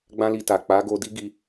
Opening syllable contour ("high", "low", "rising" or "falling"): high